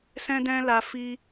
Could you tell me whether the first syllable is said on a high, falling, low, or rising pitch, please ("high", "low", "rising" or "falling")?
high